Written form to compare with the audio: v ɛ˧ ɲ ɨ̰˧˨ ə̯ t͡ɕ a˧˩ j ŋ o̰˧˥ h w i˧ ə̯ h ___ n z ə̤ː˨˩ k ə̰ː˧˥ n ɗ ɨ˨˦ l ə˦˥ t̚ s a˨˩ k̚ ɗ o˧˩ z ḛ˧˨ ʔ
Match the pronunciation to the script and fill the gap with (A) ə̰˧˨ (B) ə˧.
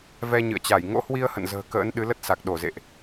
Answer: A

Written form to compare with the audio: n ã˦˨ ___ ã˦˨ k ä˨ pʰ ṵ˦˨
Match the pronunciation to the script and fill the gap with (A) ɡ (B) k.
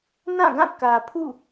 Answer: A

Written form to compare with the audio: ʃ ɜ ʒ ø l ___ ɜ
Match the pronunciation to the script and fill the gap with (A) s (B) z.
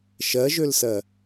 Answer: A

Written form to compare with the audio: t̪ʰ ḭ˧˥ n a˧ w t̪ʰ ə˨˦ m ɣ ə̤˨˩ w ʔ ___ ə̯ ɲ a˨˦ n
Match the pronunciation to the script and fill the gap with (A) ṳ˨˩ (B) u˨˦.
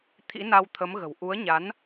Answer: B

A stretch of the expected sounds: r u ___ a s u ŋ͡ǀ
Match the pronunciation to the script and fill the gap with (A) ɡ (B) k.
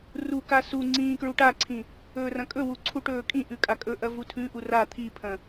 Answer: B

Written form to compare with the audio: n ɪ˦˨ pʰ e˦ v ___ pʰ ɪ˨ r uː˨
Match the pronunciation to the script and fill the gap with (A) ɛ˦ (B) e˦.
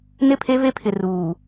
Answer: B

